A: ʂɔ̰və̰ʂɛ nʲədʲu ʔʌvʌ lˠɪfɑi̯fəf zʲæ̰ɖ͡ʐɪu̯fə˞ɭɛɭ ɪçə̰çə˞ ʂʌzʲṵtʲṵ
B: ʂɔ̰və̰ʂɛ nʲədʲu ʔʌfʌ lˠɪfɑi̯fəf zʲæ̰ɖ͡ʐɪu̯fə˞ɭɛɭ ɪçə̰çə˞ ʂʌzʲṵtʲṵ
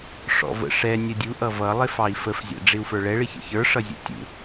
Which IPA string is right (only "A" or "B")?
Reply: A